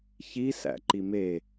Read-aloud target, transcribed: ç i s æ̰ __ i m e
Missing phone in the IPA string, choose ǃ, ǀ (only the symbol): ǃ